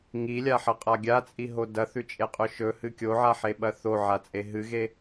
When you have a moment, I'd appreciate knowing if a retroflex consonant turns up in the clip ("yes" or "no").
no